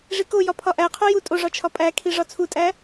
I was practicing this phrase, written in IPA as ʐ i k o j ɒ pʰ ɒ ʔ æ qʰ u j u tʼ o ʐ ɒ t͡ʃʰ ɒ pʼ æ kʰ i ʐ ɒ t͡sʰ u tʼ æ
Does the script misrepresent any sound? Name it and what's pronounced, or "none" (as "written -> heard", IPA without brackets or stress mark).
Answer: none